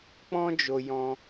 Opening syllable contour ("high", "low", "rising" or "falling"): high